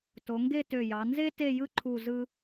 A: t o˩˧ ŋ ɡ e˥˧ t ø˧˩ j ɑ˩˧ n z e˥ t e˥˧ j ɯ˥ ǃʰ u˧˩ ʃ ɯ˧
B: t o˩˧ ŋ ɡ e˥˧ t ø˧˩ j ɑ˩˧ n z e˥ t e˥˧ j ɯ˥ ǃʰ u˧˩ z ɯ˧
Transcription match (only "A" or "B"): B